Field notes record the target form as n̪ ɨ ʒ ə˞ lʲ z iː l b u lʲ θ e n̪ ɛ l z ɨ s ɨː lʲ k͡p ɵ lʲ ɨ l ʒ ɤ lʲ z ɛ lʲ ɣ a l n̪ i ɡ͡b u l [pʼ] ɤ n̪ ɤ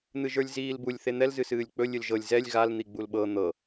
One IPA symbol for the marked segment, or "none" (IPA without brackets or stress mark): ɓ